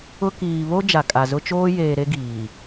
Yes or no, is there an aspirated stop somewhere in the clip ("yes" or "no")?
no